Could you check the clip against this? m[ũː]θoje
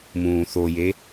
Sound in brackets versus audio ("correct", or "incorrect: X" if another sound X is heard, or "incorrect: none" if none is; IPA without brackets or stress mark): correct